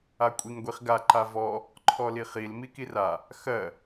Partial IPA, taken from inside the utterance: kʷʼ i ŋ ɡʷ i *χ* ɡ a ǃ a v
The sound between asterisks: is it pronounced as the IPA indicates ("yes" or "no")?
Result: yes